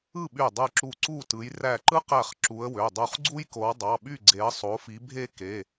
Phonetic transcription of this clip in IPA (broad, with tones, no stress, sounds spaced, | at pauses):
ɯ˥˨ ɓ y˧˩ dˤ ɯ˧˩ ǁ u˧˩ ǀ u˥˨ t ɯ˨˦ j r æ˧˩ ǃ ɯ˥ q æ˧˩ χ ǁ u˨˦ ə̯ w ø˩˧˩ dˤ u˧˩ χ ɡ͡ǀ u˥ j k o˨˦ w dˤ ɑ˩˧˩ ɓ y˥˨ ɡ͡ǀ e˨˦ ə̯ sˤ o˨˦ f i˨˦ bʱ e˥ k e˩˧˩